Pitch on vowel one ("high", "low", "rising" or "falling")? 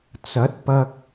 rising